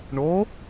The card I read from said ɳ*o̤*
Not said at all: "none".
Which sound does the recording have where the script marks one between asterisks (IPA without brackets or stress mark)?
o